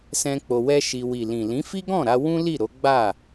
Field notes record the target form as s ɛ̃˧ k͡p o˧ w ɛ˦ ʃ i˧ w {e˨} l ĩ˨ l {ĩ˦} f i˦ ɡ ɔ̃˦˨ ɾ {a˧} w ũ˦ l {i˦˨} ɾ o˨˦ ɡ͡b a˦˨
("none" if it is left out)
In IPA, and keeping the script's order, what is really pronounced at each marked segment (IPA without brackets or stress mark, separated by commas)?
i˨, ĩ˨˦, a˧, i˦˨